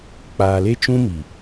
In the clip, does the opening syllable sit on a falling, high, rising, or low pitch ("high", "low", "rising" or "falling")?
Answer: low